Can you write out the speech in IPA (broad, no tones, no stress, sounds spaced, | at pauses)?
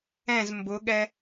ɛ̃ z m b ʊ ɠ ɛ